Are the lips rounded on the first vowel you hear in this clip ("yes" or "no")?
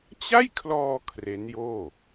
no